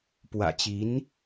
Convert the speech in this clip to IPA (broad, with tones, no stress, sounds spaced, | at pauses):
p w ä̰˨˩ t͡ɕ i˧˥ n